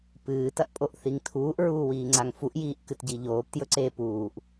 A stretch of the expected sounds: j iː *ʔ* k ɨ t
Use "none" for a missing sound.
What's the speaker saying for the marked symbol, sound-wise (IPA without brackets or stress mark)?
ʔ